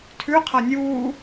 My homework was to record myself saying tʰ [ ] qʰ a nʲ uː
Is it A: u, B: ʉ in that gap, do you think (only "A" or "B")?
B